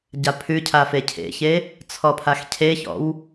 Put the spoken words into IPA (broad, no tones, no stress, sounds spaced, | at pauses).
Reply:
ɟ a pʰ ʉ cʰ a f e cʰ ḛ ç e | t͡sʰ ɔ pʰ a x cʰ e ç ɔ̰ w